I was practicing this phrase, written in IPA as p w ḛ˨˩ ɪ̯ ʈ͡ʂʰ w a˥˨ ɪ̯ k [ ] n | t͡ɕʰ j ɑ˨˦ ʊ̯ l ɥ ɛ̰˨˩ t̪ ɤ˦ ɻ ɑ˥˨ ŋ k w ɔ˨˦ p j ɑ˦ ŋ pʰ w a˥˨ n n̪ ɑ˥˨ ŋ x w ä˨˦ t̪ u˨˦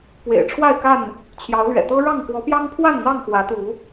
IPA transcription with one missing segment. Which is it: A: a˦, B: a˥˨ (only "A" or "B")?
B